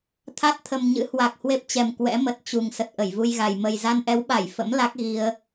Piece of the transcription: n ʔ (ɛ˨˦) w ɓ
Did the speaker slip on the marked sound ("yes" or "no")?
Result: no